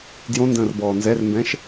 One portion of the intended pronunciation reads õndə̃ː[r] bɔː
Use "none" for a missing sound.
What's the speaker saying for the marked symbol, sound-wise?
r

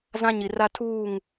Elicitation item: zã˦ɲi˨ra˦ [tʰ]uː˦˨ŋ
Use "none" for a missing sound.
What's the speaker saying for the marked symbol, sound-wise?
tʰ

